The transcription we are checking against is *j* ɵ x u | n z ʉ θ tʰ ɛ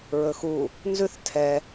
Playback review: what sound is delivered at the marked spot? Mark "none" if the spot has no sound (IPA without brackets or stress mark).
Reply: ɹ